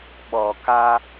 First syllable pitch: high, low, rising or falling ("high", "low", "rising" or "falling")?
low